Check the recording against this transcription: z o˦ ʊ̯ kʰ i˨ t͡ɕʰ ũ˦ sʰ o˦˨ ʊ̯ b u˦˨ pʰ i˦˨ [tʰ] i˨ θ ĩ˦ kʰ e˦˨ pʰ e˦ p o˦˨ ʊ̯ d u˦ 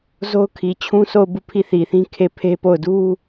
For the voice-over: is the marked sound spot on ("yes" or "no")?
no